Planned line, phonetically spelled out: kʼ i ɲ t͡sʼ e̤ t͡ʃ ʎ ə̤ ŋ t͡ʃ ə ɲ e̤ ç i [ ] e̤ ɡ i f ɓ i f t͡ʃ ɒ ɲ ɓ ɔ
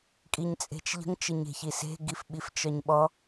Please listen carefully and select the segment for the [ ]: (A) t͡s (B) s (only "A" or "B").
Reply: B